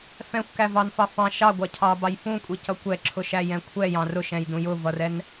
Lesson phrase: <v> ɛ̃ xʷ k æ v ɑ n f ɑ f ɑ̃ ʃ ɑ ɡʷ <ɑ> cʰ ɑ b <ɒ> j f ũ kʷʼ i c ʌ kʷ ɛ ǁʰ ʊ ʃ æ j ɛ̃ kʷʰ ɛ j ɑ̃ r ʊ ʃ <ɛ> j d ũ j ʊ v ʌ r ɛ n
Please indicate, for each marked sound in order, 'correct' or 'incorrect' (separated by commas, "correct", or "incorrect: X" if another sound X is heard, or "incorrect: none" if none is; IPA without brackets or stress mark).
incorrect: f, correct, incorrect: ɑ, incorrect: ɛ̃